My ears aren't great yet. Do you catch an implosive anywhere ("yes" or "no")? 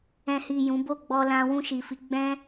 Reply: no